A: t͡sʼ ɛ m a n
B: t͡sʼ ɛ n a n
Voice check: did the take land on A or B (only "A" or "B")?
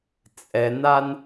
B